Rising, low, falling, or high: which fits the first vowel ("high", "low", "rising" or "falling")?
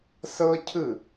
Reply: high